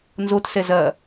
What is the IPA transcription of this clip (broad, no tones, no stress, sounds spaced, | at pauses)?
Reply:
n z o t s ɛ z ɐ